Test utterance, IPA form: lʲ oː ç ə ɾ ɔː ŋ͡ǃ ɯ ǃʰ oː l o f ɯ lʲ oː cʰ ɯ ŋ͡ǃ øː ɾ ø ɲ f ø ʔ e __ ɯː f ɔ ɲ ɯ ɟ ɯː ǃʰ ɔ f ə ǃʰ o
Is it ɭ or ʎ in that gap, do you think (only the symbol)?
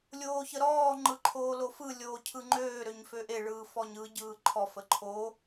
ɭ